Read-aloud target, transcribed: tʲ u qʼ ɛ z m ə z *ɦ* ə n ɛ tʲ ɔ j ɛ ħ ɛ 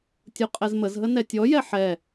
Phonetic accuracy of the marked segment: correct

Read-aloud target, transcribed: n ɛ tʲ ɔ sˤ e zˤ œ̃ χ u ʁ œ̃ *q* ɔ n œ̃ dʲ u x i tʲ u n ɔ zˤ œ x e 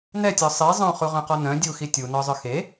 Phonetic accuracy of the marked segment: correct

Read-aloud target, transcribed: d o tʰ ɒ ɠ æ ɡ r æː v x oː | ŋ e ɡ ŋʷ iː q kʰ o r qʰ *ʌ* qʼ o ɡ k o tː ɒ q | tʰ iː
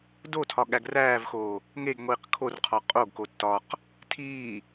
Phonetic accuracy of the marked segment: incorrect: ɒ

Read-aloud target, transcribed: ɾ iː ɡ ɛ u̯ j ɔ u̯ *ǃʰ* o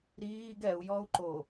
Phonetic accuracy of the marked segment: incorrect: ǃ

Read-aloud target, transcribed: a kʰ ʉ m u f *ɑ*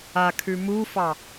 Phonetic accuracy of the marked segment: correct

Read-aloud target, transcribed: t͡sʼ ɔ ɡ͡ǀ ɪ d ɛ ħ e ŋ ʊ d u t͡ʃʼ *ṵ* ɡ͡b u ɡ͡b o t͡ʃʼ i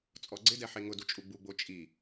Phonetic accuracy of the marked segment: incorrect: u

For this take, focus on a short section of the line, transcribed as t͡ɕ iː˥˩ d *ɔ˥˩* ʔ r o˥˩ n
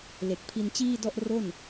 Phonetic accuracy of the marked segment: correct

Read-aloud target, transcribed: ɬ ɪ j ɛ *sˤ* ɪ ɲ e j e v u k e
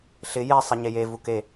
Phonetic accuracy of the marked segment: correct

